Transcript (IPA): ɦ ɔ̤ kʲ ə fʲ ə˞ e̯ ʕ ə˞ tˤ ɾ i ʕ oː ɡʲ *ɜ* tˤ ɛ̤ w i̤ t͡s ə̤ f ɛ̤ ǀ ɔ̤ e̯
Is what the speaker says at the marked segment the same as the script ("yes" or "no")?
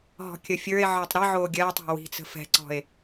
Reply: no